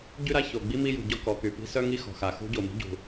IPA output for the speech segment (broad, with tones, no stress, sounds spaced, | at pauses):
ɟ y˥ ɾ a˥ ç o˩ ɡ͡b i˥ m i˥ j ṳ˩ ɟ ɔ˥ k ɔ˩ k y˩ p i̤˥ s œ˥ ŋ i˥ x ɔ̤˩ x a˩ x ṳ˥ ɟ o˩ m i̤˥ ɟ ṳ˩